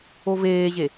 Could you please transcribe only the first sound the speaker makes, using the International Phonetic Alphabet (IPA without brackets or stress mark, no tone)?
o